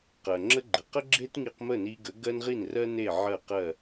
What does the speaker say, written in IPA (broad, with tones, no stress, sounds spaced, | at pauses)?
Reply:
q ɜ˩ ŋ͡ǁ ə˥ ɡ͡ǃ ə˩ q ə˥ ɡ͡ǁ e˥ t ŋ i˧ q m ə˥˩ n i˧ ɡ ə˩˥ ɡ ɜ˥ n ʁ i˥˩ n r ɜ˥ n e˥˩ ʕ ɜ˥˩ q ɜ˥˩